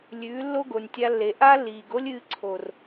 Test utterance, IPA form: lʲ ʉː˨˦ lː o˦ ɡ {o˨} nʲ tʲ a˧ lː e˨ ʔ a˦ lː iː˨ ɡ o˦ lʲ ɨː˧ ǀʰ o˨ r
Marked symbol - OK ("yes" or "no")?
yes